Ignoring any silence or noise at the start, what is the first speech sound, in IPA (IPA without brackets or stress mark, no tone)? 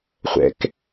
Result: χʷ